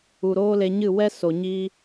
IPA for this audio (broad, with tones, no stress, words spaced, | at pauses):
u˨ɾoː˦le˧ɲɨ˦˨ wɛ˦so˨ ɲi˦